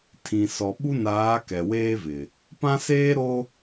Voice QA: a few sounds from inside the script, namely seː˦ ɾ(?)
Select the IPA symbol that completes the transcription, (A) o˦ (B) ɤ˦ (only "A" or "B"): A